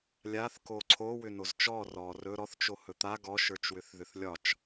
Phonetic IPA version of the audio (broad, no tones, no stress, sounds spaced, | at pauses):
lʲ a θ k o ǀʰ o w ʏ n o z t͡ʃ ɔ r ɔ r ɵ ɾ ɔ θ t͡ʃ o h ɵ t̪ a ɡ ɔ ʃ ə˞ t͡ʃ w ʏ θ ð ʏ θ lʲ ɒ t͡ʃ